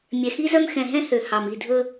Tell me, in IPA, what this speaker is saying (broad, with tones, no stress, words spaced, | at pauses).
mʲɛ˨xi˦zœ˦m xɛ̃˨ɦɛ̃˦ hø˨ hɑ˨mi˦˨dʱɵ˦